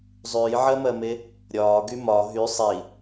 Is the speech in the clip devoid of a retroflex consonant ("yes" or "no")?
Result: yes